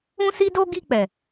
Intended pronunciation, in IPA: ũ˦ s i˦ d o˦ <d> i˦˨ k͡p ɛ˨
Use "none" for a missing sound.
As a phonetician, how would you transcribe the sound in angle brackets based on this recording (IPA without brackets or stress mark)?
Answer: ɡ